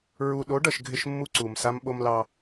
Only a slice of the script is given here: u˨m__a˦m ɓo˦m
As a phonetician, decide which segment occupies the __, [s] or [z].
s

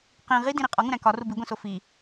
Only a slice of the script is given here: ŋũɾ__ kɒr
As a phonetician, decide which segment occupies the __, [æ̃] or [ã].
æ̃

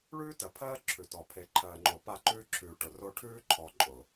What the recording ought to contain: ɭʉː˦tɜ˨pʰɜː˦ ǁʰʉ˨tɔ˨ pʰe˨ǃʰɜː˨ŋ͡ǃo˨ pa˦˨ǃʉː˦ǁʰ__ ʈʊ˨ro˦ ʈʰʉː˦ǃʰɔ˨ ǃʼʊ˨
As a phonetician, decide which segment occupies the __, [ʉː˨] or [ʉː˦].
ʉː˨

